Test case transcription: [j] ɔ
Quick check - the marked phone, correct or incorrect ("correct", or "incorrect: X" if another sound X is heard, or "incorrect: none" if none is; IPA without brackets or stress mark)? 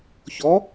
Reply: incorrect: ç